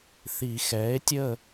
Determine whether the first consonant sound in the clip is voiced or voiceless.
voiceless